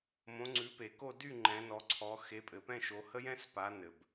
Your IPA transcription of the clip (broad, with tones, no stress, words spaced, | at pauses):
mõ˨˦ŋ͡ǀʉ˨˦pe˨ko˥˧ dy˥˧ ŋ͡ǃɛ̃˨˦nɔ˨˦ǀʰɔ˨˦ xe˨˦pʼɘ˨pɛ̃˥˧ʃo˨˦ hə˥jɛ̃˥s pa˨˦ nɘ˨b